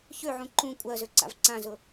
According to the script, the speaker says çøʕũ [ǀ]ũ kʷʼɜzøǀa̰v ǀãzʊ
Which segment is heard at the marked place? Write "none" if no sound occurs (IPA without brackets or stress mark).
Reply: ǃ